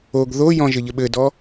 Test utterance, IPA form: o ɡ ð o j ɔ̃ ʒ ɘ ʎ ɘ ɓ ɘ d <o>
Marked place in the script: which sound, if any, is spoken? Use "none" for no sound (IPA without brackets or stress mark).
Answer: ɔ